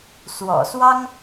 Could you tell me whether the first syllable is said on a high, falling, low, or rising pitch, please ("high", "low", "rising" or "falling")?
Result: low